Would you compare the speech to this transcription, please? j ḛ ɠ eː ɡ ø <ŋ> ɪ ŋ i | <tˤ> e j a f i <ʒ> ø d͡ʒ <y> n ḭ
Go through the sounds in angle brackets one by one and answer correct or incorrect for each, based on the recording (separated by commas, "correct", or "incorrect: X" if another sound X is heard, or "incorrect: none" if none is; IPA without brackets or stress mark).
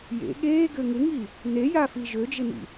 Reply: correct, incorrect: n, correct, incorrect: ɪ